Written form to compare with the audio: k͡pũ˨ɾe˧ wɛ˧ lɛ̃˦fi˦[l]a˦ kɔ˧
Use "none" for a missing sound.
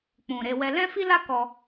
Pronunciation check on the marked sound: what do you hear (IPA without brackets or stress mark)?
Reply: l